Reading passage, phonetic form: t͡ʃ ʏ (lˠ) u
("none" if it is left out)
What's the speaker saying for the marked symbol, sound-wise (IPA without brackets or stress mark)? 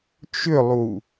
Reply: lˠ